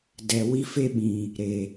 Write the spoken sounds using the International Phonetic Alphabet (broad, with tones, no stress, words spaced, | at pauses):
dɛ˨ wi˦fe˦ɓĩ˨ | ɾe˨